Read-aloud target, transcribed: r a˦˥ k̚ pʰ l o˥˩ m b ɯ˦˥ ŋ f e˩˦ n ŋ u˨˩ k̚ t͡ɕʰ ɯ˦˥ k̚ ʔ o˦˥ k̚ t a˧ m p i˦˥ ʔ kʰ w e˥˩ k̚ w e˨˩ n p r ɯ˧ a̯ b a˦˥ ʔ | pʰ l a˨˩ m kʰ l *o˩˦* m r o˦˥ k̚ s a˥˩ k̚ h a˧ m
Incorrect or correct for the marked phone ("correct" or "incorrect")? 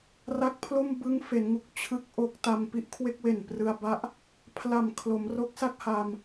correct